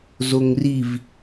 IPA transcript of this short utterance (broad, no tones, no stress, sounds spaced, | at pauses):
z o ŋ r i v